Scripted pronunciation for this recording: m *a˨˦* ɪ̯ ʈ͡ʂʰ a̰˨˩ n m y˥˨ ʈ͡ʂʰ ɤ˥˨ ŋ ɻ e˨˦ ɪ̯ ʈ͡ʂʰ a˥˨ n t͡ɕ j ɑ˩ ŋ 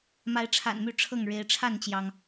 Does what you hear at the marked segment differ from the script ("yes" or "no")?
no